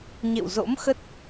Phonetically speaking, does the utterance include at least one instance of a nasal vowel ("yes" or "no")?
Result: no